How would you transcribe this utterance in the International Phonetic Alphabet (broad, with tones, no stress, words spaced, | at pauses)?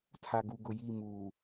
tʰa˨ ɡu˨ɡʊ˨ ji˦˨ muː˨